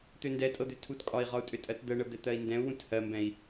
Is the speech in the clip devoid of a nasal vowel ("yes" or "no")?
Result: no